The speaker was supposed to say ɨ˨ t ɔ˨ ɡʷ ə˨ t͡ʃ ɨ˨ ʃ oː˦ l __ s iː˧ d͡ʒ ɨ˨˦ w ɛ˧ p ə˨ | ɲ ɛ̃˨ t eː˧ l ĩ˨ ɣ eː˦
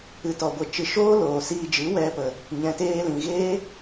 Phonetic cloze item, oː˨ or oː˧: oː˨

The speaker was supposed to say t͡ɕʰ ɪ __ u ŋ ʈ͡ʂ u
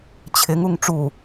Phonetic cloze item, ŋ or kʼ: ŋ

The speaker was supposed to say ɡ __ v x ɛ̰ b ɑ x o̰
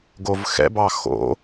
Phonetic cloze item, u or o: o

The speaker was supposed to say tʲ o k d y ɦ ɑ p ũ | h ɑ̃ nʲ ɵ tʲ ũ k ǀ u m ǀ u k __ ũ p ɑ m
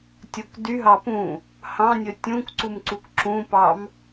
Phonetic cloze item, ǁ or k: ǁ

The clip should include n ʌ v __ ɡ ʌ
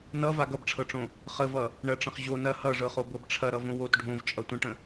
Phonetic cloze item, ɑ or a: a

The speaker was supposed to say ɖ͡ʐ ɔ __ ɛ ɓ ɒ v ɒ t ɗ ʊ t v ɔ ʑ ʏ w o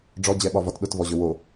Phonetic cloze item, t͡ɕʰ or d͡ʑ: d͡ʑ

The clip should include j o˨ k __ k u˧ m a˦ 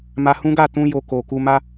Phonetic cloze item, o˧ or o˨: o˨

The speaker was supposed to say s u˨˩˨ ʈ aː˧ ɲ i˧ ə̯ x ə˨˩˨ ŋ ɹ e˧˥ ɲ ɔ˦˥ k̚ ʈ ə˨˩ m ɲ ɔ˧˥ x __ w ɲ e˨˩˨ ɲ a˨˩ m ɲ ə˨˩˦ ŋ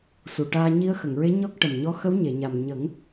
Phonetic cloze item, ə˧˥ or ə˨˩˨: ə˧˥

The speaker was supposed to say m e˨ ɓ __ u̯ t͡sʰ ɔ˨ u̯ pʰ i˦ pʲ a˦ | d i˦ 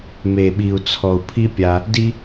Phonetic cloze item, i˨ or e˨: i˨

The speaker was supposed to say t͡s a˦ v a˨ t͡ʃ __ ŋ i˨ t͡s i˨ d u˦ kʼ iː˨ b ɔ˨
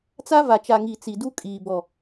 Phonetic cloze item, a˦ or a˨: a˨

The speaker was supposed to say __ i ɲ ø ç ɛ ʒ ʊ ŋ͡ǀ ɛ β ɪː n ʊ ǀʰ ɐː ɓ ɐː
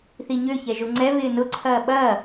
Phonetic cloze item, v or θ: θ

